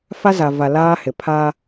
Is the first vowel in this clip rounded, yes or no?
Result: no